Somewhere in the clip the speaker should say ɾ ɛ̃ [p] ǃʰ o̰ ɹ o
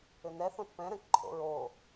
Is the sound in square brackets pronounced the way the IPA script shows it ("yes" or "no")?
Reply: no